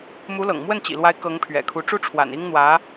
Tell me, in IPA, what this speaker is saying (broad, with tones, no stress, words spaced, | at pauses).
mu˧˥lɤ̰˨˩ŋ mwə˥˩nt͡ɕḭ˨˩lwa˧˥ɪ̯ kɤ˧˥ŋpʰɥɛ̰˨˩kʰu˧˥ ʈ͡ʂu˥ʈ͡ʂʰwa̰˨˩ni˥ŋ n̪wä˧˥